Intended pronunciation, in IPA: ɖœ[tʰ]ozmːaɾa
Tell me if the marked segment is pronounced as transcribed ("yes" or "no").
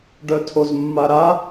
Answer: yes